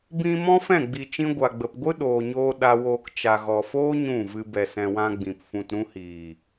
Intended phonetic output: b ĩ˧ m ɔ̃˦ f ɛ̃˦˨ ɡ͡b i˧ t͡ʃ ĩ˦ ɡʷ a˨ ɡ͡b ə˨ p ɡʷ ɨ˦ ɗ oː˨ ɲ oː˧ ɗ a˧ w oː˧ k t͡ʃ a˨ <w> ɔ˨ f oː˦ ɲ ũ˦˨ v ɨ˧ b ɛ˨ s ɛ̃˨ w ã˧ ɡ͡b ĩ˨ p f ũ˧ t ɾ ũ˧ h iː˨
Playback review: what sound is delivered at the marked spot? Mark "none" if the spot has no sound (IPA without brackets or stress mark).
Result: ɣ